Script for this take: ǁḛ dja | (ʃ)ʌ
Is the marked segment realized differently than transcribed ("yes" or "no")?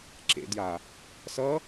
yes